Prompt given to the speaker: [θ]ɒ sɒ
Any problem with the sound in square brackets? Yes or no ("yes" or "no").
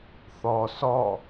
no